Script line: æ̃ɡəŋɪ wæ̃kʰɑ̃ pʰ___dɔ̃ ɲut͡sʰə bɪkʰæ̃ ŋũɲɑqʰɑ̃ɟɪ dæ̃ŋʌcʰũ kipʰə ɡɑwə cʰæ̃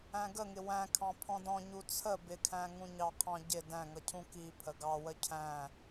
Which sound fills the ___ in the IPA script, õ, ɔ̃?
ɔ̃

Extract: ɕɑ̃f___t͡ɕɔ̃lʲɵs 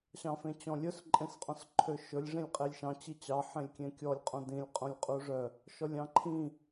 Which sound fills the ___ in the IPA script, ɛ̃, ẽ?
ẽ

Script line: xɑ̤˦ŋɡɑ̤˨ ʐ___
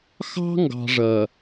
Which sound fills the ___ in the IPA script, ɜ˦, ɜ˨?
ɜ˨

